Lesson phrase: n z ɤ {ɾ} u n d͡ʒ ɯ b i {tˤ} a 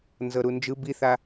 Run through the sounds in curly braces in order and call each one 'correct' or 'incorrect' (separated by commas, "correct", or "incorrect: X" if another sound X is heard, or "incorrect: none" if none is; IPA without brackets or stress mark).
correct, incorrect: θ